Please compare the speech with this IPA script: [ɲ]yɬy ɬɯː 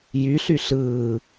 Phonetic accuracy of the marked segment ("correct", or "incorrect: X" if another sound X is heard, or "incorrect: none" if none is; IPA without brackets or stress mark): incorrect: j